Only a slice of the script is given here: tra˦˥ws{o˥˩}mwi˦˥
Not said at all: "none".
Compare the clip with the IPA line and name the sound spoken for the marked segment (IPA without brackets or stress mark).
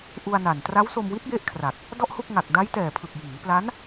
o˧